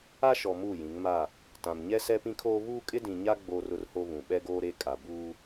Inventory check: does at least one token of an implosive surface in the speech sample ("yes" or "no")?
yes